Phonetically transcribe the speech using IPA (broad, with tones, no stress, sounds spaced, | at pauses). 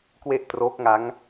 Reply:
k w e˥˩ ʔ t r oː˦˥ k̚ ŋ a˦˥ ŋ